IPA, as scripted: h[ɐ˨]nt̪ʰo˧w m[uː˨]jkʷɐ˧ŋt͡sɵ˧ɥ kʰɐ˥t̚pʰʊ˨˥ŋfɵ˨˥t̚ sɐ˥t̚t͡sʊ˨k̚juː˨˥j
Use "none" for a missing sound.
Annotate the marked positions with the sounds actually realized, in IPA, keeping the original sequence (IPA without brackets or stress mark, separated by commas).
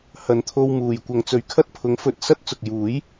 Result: ɐ˨, uː˨